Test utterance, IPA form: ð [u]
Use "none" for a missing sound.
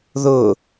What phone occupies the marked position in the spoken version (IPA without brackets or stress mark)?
ʊ